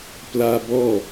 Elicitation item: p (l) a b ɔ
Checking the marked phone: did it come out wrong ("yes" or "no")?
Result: no